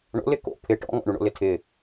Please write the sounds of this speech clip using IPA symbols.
ɳ o̰ l ɪ k o̰ pʰ ɪ ʈ ɔ̰ ŋ ɔ̰ ɳ u ɳ o̰ l ɪ tʰ ɪ

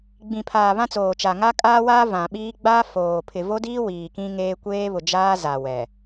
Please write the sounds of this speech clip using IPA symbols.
ɡ͡b ĩ˨ pʰ aː˨ β ã˦ t͡s oː˨ t͡ʃ a˨ ŋ a˦ kʼ aː˦ w aː˦ v ã˨ ɓ iː˦ ɡ͡b a˦ f oː˨ pʰ ɪ˨ v o˦ d iː˦ w iː˨ k ĩ˦ ŋ eː˦ kʷ eː˦ β ʊ˨ d͡ʒ aː˦ z a˨ w ɛ˨

